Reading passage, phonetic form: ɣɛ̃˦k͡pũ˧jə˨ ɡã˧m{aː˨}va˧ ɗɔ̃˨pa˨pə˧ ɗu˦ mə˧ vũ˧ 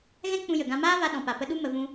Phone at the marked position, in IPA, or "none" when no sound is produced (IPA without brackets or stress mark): aː˦